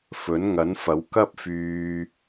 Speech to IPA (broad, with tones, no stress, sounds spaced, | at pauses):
f ɵ˨˥ n ŋ ɐ˨˥ n f ɐ˨˥ w k ɐ˥ p̚ f yː˧